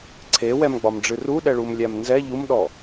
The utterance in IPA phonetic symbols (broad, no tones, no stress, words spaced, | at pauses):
ǀʰewɛmɡ͡bɒmɖ͡ʐɨ ruɗɛɭumlʲæm nzɛ ʎumɗɔ